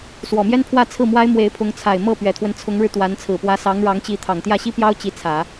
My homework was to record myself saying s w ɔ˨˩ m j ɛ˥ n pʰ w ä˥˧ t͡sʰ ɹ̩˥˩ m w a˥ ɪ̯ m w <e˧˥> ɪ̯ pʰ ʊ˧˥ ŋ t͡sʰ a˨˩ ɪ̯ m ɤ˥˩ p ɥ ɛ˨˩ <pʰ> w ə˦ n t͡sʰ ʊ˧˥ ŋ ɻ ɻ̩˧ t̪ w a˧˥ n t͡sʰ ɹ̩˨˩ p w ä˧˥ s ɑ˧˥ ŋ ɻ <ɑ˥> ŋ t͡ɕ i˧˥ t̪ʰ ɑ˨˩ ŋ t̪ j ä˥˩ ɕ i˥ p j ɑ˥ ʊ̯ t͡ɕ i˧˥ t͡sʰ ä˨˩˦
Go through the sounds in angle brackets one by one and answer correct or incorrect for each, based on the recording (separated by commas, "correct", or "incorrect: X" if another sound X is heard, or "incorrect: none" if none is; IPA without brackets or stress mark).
correct, incorrect: t̪ʰ, incorrect: ɑ˧˥